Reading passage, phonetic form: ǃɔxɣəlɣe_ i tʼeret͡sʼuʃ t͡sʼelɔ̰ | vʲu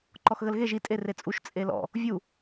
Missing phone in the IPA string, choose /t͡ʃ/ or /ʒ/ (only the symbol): ʒ